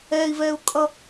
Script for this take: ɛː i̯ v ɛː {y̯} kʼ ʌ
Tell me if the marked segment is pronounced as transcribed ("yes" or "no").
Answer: no